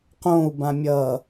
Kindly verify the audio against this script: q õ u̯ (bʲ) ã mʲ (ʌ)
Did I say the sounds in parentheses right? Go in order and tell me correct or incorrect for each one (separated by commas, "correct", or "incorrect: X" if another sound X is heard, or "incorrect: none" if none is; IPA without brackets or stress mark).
incorrect: b, correct